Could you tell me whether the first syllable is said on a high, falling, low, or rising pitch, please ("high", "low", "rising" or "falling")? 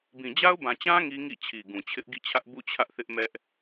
low